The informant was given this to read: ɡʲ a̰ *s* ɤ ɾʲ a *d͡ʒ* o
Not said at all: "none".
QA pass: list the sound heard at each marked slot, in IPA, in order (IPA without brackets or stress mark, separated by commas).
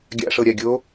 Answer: ʂ, ɡʲ